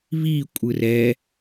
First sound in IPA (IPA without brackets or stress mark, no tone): β